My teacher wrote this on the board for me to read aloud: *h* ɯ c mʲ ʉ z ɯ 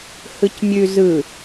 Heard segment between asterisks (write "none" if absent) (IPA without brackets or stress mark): h